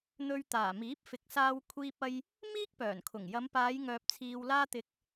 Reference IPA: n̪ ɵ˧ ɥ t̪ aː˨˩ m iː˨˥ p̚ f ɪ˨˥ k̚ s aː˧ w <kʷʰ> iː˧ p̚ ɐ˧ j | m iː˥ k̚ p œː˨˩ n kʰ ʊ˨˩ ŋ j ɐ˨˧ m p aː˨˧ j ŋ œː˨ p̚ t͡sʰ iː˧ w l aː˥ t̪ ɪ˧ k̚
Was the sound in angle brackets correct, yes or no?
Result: yes